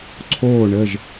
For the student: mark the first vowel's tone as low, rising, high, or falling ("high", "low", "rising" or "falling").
falling